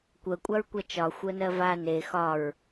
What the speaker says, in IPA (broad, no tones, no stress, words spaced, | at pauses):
kʷɜkʷʼaɹkʷa t͡ʃɒxʷɜnɜ va ne xɒɹ